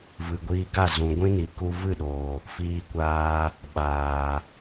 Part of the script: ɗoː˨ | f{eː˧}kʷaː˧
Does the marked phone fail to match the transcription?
yes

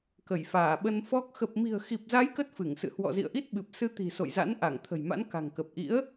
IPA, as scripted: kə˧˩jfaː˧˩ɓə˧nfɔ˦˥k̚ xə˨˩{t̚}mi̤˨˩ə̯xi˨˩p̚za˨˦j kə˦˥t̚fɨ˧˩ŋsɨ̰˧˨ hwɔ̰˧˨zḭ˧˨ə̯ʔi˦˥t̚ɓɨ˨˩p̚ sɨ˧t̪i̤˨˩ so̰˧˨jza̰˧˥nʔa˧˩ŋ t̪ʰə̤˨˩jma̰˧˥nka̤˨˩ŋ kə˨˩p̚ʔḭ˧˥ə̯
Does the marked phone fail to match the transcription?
yes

